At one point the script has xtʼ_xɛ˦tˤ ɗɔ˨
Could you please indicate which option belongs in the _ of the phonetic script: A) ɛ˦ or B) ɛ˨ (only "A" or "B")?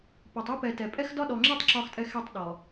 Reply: A